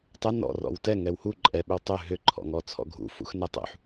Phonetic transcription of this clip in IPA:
tˤ ɛ n ɔ̰ r ɔ̰ w t ɛ ŋ ɛ w h u ǃʼ ɛ ɓ ʏ w tˤ ʏ ɦ ʏ ǃʰ ɔ̰ ŋ ɔ t͡sʰ ɔ̰ ɡʱ ṵ f ṵ x n ɛ tˤ ṵ ħ

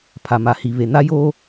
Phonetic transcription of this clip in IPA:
pʰ a˨ m a˨ h i˨ β e˨ n a˦ j oː˦

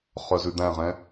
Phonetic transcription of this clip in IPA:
χ œ z ʉ d̪ æ̃ ʁ ɛ̃

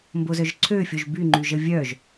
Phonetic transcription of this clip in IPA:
m b o z œ ʒ ǀʰ ø fʲ o ʒ b y ŋ͡ǃ y ʒ ə vʲ œ ʒ

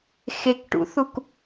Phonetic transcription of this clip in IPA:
x e k ʈ ṵ θ u k

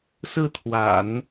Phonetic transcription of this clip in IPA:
s ɹ̩˥˩ t̪ʰ w a̰˨˩˦ n

